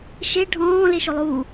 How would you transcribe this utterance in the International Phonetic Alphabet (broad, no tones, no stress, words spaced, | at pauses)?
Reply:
ʃe ɖʱɔ̃ː leʃolˠuː